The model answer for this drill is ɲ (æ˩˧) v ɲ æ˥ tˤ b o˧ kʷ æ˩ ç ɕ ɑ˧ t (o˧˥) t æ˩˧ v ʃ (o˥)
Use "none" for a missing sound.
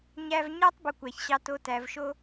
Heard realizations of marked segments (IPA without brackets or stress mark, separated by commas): æ˧, o˧˥, o˥